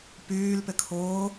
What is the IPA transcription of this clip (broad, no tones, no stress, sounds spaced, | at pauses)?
p yː l p ɪ kʰ ʊː